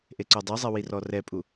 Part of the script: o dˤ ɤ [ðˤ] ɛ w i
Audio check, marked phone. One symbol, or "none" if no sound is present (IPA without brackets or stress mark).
zˤ